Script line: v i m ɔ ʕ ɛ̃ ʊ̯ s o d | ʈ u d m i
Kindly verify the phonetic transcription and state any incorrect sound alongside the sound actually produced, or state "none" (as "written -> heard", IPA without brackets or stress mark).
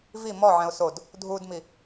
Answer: ʈ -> dʱ